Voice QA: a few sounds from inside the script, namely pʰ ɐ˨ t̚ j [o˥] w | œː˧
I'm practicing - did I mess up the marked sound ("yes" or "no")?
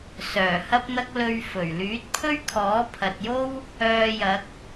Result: no